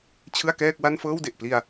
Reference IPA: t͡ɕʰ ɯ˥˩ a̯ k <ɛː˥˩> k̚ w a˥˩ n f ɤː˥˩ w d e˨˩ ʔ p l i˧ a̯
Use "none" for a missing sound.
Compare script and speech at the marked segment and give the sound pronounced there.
ɛː˥˩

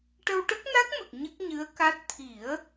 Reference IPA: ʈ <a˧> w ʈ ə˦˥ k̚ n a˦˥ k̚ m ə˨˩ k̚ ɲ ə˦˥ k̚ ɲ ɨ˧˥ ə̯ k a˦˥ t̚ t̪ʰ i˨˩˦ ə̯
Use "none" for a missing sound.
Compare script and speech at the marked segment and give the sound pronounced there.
ə˧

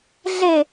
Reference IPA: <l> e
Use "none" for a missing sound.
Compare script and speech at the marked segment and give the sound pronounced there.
ɮ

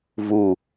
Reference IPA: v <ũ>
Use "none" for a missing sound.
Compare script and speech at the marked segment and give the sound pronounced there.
u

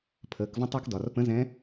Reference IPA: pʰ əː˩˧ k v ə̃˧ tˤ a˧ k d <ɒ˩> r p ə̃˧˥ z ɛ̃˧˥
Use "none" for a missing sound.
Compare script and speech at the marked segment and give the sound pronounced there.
ɒ˩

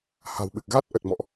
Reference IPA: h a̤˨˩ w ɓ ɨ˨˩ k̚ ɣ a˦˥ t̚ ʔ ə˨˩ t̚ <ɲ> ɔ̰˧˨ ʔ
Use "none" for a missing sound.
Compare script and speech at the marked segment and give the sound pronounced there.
m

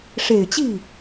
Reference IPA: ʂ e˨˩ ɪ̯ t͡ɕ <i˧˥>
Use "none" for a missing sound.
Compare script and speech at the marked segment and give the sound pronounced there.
i˥˩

